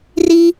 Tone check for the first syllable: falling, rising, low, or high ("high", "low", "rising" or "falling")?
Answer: high